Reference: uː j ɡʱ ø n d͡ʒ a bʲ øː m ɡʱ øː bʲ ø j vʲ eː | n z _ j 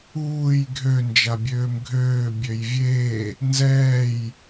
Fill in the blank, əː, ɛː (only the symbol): ɛː